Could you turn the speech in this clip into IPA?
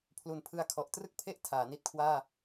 pʰlu˨˩npʰɯ˦˥a̯kʰɔ˨˩ʔ trɯ˥˩k̚pʰe˥˩ʔ tʰaː˩˦ ni˦˥t̚kʰwaː˥˩

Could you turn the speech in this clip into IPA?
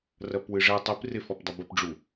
rɐpwɨʐɛ tˤɨp refɔpdˤɘbɘp ɖ͡ʐu

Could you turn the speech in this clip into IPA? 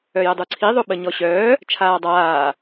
œjədˤuǀʰi ðˤoɓəɲɔɕœː | t͡ʃʰaːdˤaː

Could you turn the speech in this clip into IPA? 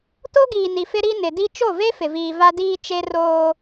to˦ɡiː˨ni˨ fɪ˦ɾi˦ nɪ˨di˦ t͡ʃo˦˨ve˦ fɪ˨viː˨va˦ diː˦t͡ʃe˦ roː˦

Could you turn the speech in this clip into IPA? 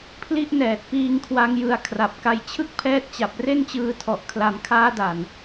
pʰli˦˥ʔnɛː˨˩t̚piː˧ŋ kʰwa˦˥ŋjɯ˧a̯kʰra˨˩p̚ka˧j t͡ɕʰɯ˥˩k̚pʰɛː˦˥t̚t͡ɕa˨˩p̚ re˥˩nt͡ɕɯː˧tʰɔ˨˩ʔ kʰla˩˦m kʰaː˦˥da˨˩n

